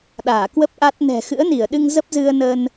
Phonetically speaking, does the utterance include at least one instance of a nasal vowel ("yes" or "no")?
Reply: no